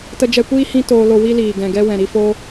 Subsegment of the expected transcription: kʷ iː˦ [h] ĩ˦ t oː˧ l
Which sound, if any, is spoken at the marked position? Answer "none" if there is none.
h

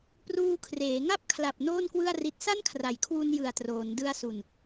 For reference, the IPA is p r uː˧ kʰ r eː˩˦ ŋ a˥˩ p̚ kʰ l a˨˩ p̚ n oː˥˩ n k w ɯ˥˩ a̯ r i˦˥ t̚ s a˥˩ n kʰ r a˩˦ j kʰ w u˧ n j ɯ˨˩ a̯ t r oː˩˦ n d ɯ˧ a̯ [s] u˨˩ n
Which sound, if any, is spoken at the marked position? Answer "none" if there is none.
s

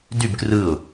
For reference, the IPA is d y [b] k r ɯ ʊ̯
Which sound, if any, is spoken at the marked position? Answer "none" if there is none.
b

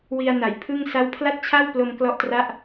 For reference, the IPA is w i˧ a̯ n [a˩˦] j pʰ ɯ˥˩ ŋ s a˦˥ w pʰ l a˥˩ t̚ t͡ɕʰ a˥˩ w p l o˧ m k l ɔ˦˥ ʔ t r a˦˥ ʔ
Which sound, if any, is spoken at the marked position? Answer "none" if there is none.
a˩˦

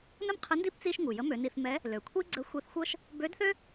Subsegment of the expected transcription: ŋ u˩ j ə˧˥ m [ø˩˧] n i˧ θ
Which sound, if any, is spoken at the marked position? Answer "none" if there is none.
ø˩˧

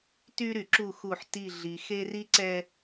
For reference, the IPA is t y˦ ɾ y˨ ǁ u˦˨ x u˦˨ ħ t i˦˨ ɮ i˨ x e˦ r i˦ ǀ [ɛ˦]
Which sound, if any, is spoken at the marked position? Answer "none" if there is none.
ɛ˦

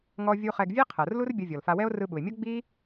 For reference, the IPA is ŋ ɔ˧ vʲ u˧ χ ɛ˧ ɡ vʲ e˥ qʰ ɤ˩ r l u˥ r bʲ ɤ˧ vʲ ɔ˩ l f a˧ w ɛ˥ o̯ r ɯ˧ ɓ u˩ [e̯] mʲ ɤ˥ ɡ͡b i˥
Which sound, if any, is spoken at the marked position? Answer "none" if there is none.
e̯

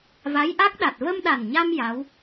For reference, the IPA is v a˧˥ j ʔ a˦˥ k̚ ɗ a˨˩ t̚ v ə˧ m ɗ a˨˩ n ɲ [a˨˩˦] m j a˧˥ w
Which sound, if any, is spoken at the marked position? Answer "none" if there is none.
a˧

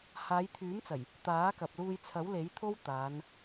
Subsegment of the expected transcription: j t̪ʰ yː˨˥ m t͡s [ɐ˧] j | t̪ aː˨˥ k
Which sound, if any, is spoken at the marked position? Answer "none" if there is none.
ɐ˨˩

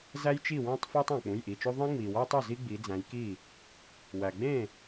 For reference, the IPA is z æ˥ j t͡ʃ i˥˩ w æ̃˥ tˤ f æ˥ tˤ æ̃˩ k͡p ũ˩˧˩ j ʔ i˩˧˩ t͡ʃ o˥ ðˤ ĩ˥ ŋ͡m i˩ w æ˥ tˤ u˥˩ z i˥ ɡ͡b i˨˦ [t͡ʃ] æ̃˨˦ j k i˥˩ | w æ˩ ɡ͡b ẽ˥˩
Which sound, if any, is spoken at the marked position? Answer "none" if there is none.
d͡z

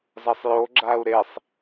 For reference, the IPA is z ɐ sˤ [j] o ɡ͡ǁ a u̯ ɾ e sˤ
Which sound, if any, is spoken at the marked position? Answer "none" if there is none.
j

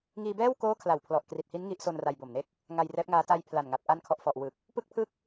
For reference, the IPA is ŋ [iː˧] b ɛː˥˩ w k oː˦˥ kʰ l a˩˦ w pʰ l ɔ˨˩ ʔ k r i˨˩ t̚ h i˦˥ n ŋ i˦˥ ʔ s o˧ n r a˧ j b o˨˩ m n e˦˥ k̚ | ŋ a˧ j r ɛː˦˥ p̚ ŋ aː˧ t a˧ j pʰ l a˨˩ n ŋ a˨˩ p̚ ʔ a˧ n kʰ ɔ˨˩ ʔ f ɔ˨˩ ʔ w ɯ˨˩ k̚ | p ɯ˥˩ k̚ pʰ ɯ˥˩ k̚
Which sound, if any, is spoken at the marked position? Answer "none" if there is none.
iː˧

